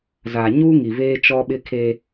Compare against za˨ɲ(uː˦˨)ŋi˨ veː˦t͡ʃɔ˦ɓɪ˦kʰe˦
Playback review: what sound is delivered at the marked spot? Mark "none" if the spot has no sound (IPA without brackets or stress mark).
uː˦